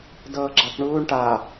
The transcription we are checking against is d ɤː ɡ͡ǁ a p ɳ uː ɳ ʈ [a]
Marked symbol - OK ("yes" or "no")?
yes